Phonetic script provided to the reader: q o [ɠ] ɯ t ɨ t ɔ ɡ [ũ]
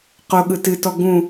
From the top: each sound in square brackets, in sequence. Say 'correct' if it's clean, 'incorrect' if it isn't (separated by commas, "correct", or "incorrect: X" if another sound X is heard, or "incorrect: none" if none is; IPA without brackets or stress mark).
correct, correct